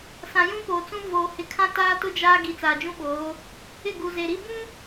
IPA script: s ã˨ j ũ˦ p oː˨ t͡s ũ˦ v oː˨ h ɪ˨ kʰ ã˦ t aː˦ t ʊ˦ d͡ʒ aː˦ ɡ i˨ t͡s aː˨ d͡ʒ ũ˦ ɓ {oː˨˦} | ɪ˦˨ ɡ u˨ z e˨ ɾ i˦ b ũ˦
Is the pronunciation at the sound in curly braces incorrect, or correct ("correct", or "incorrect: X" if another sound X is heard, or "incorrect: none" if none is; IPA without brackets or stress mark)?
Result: correct